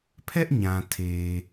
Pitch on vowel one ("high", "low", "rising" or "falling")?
high